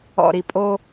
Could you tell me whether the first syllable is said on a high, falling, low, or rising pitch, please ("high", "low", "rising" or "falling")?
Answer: low